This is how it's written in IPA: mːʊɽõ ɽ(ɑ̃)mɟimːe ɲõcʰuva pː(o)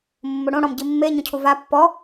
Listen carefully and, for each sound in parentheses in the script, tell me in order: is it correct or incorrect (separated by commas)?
incorrect, incorrect